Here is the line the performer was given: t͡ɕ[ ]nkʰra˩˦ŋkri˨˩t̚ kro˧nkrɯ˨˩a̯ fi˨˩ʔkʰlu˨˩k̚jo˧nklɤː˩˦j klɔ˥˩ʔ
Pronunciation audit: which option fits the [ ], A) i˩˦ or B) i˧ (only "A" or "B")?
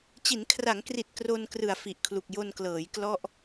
A